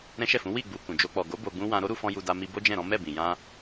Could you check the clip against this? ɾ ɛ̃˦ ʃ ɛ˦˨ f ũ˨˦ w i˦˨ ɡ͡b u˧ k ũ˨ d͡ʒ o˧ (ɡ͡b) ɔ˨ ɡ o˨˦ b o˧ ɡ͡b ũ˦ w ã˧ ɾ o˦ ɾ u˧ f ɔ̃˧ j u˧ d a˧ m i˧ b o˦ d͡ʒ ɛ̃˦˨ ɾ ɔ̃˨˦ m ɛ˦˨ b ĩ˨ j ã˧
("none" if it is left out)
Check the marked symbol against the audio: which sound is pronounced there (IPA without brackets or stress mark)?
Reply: k͡p